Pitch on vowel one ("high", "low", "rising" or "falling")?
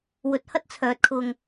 rising